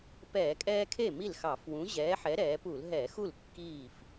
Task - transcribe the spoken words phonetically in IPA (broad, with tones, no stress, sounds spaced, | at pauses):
p ɛː˧˩˧ kʼ ɛː˦ kʰ e˥˩ m i˥˩ l x ɑ˧˩˧ f w ũ˨˥ ʑ ɛː˨˥ ħ ɛ˨˥ ɾ ɛː˩˧ p u˧˩˧ l ɦ ɛː˧˩˧ x u˥˩ l kː iː˥˩ f